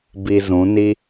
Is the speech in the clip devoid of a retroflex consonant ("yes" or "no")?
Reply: yes